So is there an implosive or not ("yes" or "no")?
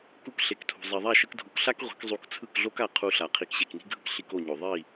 no